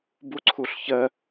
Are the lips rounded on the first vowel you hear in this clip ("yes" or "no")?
yes